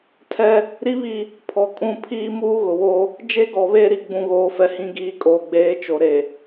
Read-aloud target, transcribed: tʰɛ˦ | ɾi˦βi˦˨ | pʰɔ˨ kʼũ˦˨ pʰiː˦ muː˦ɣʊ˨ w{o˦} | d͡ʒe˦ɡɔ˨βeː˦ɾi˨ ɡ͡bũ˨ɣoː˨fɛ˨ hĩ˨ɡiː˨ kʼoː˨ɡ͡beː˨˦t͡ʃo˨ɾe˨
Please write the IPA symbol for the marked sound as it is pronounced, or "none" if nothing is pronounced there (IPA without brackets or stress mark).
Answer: o˦